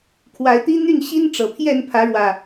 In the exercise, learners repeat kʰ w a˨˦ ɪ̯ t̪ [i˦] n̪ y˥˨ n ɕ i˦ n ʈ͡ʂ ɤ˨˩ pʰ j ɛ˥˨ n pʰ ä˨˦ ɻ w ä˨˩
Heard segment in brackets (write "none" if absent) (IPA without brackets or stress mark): i˦